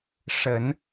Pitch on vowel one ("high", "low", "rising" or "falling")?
low